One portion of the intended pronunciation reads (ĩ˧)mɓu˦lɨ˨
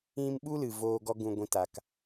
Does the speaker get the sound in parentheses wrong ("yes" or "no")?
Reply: no